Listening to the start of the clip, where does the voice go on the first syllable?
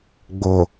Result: low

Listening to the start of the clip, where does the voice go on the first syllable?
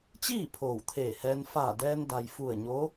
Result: falling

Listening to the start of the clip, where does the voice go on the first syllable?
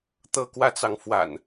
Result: falling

